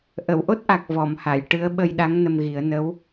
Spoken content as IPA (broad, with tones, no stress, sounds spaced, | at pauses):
ʔ ə˨˩˨ w ʔ o˦˥ t̚ ʔ a˨˩ k̚ v ɔ˨˩˨ m h a˨˩˨ j ʈ ɨ˧˥ ə̯ ɓ ə˧ j ɗ a˧˥ ŋ n ə˧ m ɣ i˨˩˦ ə̯ n ə˧˥ w